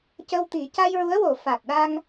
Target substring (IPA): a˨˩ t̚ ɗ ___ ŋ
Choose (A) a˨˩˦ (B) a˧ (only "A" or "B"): B